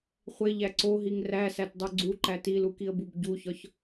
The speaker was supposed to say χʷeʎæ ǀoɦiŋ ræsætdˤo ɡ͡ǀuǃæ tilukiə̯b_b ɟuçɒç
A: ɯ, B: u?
B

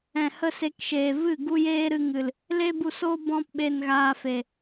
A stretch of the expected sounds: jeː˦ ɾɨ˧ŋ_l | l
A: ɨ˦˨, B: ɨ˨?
B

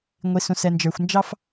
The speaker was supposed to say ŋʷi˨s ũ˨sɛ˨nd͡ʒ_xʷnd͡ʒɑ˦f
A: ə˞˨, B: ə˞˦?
A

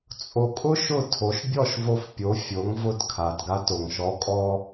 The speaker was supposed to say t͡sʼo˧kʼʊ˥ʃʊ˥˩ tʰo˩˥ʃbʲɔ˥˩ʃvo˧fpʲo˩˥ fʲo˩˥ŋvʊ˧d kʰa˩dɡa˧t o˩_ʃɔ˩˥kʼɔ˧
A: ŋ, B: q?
A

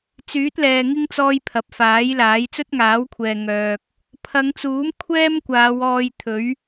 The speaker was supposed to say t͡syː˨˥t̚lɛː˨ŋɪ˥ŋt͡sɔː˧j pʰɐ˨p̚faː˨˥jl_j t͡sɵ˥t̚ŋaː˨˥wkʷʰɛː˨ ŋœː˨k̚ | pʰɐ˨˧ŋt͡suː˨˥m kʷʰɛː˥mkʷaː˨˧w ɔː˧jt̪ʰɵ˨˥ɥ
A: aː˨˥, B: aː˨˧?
A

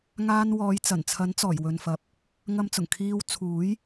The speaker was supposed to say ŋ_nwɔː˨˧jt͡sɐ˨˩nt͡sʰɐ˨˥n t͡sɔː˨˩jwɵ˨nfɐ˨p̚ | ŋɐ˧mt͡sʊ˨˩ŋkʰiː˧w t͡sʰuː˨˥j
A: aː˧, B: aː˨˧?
A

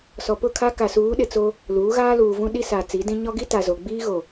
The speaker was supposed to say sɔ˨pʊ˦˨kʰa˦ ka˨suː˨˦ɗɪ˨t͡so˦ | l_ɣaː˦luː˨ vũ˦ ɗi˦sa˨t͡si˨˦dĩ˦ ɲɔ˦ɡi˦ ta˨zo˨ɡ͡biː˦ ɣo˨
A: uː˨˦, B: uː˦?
A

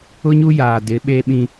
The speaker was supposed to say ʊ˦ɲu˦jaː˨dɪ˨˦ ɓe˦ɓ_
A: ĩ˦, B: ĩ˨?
A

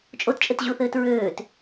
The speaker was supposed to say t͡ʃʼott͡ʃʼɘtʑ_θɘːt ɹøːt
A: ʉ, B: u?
B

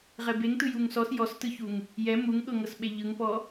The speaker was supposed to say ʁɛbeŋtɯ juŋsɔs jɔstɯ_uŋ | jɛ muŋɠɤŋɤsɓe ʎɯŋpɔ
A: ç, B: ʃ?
A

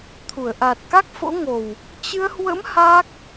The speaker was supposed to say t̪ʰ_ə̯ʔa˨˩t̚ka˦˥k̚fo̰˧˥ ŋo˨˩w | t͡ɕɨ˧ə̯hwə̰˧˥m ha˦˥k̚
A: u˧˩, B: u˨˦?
A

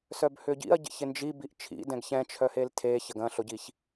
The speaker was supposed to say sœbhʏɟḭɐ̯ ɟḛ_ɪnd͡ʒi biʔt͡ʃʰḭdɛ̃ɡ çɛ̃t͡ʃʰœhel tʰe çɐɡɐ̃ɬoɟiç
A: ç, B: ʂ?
A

